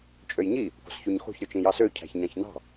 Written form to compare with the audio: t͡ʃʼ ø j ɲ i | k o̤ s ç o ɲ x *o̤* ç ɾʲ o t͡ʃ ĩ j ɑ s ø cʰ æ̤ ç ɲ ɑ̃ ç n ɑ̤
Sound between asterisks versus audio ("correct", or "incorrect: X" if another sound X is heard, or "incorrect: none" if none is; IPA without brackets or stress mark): correct